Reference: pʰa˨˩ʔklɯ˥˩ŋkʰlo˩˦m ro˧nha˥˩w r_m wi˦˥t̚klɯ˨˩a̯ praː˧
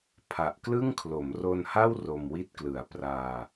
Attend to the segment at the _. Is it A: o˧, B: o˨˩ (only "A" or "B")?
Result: A